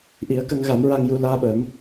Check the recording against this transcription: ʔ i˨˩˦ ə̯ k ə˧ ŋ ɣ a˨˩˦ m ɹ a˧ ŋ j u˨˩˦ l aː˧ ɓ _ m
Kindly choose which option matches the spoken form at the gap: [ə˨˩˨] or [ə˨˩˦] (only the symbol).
ə˨˩˦